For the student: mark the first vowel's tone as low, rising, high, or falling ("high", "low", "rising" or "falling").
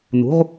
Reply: rising